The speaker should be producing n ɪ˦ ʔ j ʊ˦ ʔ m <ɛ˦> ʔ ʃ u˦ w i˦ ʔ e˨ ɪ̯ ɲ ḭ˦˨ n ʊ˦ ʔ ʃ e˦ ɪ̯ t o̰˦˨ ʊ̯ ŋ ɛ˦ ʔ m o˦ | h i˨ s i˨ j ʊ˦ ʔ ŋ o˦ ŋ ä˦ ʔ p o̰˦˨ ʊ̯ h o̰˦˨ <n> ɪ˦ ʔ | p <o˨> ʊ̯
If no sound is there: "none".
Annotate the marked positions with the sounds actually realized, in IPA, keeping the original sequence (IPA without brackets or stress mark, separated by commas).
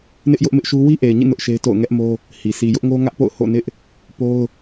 ɪ˦, n, o˦